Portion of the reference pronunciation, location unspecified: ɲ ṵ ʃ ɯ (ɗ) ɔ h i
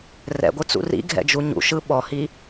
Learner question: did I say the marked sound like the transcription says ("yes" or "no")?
no